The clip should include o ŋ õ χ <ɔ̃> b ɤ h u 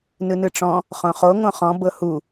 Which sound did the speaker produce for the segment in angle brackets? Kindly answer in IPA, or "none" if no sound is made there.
ɔ̃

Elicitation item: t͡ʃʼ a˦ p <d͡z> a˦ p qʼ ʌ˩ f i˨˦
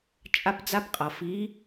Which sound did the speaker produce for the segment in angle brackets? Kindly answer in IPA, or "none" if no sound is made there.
d͡z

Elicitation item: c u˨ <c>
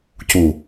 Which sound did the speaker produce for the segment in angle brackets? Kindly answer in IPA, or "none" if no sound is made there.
none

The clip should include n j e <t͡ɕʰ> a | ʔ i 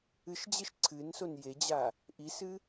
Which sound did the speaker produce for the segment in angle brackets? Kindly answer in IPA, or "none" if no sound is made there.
d͡ʑ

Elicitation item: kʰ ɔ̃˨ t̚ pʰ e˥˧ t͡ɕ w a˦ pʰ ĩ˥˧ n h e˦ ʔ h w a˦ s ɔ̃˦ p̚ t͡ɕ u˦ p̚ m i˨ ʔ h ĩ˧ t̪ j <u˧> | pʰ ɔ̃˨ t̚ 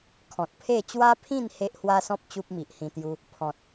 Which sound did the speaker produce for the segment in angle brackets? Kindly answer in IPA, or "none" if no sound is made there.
u˦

